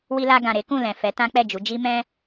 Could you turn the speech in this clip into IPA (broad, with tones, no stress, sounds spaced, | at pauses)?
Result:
w i˧ l a˧ ɡ ã˨ ɾ e˨˦ k ũ˦˨ l ɛ̃˨ f ɛ˨˦ t ã˦ k͡p ɛ˦˨ d͡ʒ u˨˦ d͡ʒ i˦ m ɛ̃˦